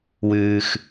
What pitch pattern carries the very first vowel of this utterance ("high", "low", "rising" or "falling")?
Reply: low